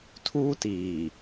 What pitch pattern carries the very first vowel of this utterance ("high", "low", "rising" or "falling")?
high